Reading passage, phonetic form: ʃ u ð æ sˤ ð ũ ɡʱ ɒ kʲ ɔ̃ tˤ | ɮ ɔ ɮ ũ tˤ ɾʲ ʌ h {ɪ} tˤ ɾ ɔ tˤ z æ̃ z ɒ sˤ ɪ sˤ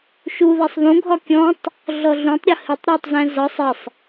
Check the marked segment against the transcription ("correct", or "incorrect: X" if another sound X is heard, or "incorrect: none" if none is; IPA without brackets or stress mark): correct